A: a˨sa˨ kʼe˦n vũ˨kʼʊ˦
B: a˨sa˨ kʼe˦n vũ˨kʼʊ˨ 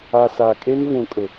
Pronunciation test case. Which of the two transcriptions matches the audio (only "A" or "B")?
B